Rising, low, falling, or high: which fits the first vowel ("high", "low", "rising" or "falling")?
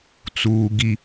low